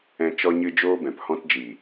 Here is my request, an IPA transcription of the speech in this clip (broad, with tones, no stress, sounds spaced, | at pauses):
ɛ̃˨ t͡ʃ ɔ˧ ɲ ɨ˧ d͡ʒ oː˦ b ɛ̃˨ p h ɔ̃˧ t d͡ʒ iː˨